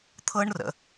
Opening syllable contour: high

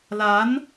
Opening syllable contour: rising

